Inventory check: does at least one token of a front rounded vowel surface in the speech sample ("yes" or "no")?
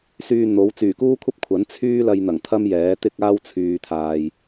yes